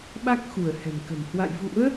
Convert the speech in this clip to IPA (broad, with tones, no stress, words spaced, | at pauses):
ɓa˦˥k̚xu˧˩ə̯ hɛ̤˨˩mkə̤˨˩m hwa̰˧˨jvṵ˧˥ə̯